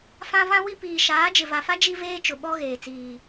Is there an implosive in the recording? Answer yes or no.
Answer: yes